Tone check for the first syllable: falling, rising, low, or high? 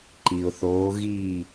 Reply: low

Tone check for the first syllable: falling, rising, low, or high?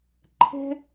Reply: high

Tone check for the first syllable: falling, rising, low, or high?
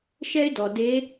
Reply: high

